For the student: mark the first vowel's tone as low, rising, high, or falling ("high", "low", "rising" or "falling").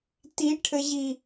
rising